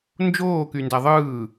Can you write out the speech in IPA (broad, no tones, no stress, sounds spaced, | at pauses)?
n d͡ʒ oː k y n d æ ðˤ ɯː